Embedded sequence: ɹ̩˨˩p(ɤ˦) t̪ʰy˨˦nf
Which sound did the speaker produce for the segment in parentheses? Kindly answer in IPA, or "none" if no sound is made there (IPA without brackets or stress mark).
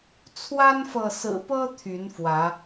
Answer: ɤ˦